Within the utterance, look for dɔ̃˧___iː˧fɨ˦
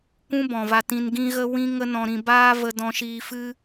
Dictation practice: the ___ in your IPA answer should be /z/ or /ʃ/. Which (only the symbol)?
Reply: ʃ